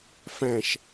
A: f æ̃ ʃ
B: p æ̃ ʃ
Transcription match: A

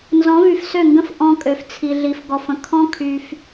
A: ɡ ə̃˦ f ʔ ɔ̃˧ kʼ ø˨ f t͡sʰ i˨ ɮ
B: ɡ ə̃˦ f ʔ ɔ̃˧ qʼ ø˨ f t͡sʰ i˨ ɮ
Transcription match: A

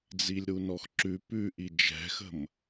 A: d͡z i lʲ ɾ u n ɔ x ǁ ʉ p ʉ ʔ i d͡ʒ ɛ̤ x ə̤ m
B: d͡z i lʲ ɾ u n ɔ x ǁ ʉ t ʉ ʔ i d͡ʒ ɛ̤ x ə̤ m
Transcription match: A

